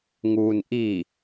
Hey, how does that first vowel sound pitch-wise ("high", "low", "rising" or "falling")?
low